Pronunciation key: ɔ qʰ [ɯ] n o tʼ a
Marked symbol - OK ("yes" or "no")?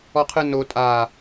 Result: yes